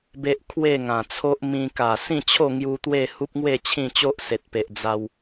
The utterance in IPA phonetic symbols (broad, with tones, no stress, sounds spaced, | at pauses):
b e˦ ʔ kʰ w e˥˧ ŋ ã˨˩ t͡sʰ o˦ ʔ m ĩ˧ k a˨˩ s ĩ˥˧ t͡ɕʰ o˥˧ ŋ j u˧ t̪ w e˥˧ h u˦ p̚ ŋ w e˥˧ t͡ɕʰ ĩ˥˧ t͡ɕ o˦ ʔ s e˨ t̚ p e˨ ʔ d͡z a˧ w